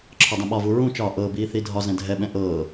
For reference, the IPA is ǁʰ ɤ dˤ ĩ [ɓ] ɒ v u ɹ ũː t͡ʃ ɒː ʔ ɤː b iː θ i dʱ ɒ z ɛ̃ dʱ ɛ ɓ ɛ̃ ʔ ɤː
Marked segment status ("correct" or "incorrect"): correct